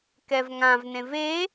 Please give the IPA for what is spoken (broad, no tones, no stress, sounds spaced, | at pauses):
k ɛ v ŋ ã v n ẽ v e